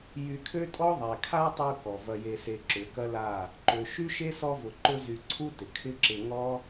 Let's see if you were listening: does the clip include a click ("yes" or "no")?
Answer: yes